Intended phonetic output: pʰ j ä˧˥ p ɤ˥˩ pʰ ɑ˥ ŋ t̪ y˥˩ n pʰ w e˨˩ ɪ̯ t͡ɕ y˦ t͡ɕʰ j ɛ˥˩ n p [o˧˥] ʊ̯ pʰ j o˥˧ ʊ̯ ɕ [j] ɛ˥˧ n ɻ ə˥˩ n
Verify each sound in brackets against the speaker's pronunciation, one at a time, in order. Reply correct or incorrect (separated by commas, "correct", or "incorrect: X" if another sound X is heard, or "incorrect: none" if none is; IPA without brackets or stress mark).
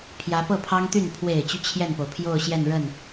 incorrect: o˩, correct